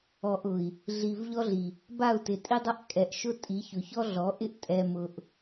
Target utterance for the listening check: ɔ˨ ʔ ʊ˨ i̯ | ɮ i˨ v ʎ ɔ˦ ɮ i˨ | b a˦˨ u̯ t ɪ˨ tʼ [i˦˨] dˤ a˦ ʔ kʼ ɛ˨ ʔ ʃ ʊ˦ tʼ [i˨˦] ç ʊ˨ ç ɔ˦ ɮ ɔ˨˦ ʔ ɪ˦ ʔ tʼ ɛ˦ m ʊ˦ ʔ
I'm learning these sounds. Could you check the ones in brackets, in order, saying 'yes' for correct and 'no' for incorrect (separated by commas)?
no, yes